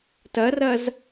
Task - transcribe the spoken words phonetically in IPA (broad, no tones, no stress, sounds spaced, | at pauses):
t ɐ r ɐ z